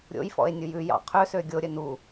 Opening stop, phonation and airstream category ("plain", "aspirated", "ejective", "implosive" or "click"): aspirated